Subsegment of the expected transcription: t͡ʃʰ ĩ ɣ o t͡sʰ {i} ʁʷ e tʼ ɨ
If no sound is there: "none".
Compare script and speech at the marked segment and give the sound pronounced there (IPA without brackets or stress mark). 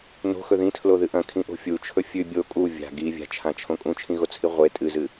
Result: i